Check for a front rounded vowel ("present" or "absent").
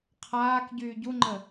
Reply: present